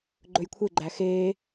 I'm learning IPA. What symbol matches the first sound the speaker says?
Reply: ɡ͡ǃ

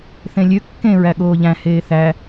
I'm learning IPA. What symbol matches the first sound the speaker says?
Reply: θ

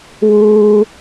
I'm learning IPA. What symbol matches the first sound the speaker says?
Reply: w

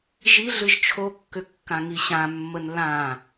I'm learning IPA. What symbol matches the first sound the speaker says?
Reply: ʒ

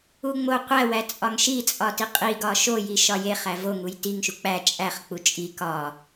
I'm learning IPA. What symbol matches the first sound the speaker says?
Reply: u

